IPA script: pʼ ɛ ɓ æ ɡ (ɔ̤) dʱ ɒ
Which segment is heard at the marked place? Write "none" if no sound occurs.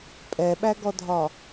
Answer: ɔ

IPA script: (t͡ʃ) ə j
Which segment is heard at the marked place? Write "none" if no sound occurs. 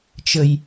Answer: t͡ʃ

